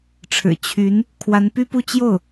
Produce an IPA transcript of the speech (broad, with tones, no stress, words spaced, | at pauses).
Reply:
ʈ͡ʂʰɻ̩˨˩ t͡ɕʰy˧˥n | kʰwa˧˥npy˥pu˥˧ t͡ɕjo˥˩ʊ̯